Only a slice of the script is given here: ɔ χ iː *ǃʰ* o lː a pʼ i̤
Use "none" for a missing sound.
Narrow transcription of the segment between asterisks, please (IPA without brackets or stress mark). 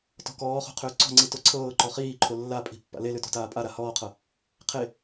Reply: ǃʰ